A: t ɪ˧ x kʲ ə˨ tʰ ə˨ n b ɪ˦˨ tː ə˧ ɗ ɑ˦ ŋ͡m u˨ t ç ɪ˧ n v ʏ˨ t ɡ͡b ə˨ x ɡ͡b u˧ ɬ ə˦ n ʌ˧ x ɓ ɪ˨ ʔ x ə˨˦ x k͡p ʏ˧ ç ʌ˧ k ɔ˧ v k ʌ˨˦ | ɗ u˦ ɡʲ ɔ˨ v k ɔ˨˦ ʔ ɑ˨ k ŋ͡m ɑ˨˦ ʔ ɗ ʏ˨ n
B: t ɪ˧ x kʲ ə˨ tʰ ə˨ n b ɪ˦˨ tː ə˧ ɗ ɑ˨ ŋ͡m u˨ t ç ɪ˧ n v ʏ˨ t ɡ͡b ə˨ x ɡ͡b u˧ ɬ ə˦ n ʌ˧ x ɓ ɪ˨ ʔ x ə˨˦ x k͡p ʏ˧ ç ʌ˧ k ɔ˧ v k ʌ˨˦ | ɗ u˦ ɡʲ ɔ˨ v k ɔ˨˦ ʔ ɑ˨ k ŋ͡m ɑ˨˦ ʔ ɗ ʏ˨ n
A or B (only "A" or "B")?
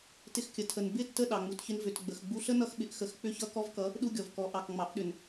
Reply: B